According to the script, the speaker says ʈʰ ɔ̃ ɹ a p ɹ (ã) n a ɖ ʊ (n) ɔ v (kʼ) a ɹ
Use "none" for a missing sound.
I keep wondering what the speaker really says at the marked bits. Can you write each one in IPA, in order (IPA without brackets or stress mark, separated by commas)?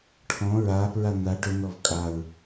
a, n, kʼ